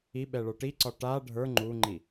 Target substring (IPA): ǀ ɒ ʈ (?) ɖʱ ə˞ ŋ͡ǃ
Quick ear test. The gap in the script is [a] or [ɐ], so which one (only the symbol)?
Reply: a